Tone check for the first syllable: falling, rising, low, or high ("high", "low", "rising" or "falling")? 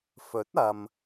rising